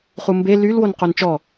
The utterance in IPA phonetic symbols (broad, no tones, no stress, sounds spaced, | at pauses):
χ u m b e l y l w o n q o n t͡ʃ ɔ